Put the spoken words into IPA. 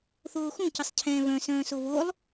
θ oː x ũ c ə sˤ cʰ ɛ̃ː β œ̃ s œ̃ː s o β o lˠ

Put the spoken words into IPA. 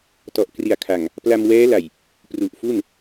t ɔ˨˩ ʔ k r i˨˩ a̯ kʰ a˨˩ ŋ | p l a˧ m w ɛː˦˥ l a˨˩ j | p r u˨˩ ʔ f u˥˩ n

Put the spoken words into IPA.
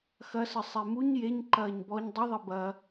x ɐ s ɘ sˤ e m u ɲ j e ɲ ǃ ɐː ɲ b ɔ ɲ dˤ i ðˤ i b ɐ

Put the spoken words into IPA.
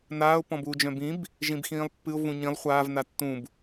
n aː ʊ̯ p ɔ̃ b uː d͡ʒ œ̃ b ĩ b | ʒ ĩ b x ĩː lˠ pː ɨ ʊ̯ v ũ ɲ ĩ lˠ χʷ aː v n a tː ũ b

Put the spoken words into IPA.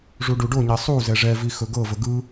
ʐ u ɖ u ɖ o ɲ ɛ sˤ u z ɛ ʐ ɛ v i x ɵ ɡ ɤ v ə ɡ ɯ

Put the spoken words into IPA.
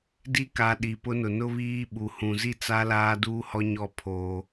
d i˦ k a˨ ɗ i˨ p ʊ˦ n ʊ˨ n ʊ˦ β iː˦ ɓ u˨ h ũ˨ z i˦˨ t͡s a˦ l aː˦ d uː˦ h ɔ˦ ɲ ɔ˦˨ pʰ oː˦

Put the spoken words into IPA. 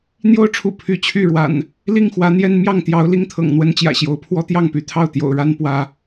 n̪ j o˦ ʊ̯ ʈ͡ʂʰ ṵ˨˩ pʰ y˨˦ t͡ɕʰ y˥˨ ɻ w a̰˨˩ n | l i˥˨ ŋ x w ä˨˦ n̪ j ɛ˦ n m j ɑ˥˨ ŋ t̪ j ɑ˨˦ ʊ̯ l i˦ ŋ t̪ʰ ɤ̰˨˩ ŋ n̪ w ə˦ n t͡ɕ j ä̰˨˩ ɕ j o˨˦ ʊ̯ pʰ w ɔ˦ t̪ j ɑ˥˨ ŋ p y˥˨ t̪ʰ ɑ˥˨ ʊ̯ t̪ j o̰˨˩ ʊ̯ ɻ a˦ n p w ä˦

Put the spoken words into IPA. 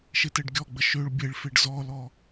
ʃ e t ɛ ɖ ɡʲ ɔ ɡ͡b ə ʃ ø ɭ bʲ e ɭ f e ɖ z ɔ l ɔ

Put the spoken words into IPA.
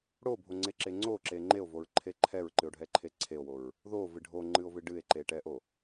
ɽ o bʱ o ŋ͡ǀ e ǁ e ŋ͡ǀ o ǁ e ŋ͡ǃ e o̯ v o ɹ ǃʰ e ǃʰ ɛ ɹ ǃ ɨ o̯ ɖʱ ɛ ǃʰ e ǀʰ e o̯ w o ɹ | ð o v ɨ ɖʱ o ŋ͡ǃ ɨ o̯ v ɨ ɖ ɨ e̯ ǃ e ʈ ɛ ʔ o

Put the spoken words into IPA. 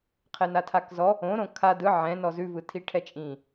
qʰ ɛ n a tʰ a k z ɔ | õ ɾ õ kʰ a d ɯ ʕ ɛ̃ n ɔ z ʉ v ɯ tʰ i ʈʰ ɛ t͡ʃʼ ĩ

